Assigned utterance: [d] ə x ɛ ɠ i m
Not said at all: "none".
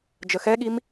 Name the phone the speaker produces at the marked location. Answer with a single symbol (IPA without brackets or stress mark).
d͡ʒ